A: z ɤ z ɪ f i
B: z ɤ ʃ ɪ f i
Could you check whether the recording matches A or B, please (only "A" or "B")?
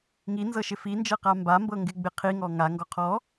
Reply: B